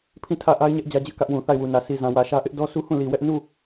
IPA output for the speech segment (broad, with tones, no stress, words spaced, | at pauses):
pʰĩ˦˨tʰä˦˨ʔa˦ɪ̯ ɲɛ˦ʔ d͡ʑä˦d͡ʑɪ˦ʔkä˦ʔwũ˨ θa˦˨ɪ̯wu˨nä˨ si˨zã˨wä˨ʃä˦ ʔɪ˦ʔdɔ˦su˦ hũ˦˨li˨wɛ˦ʔ nu˦˨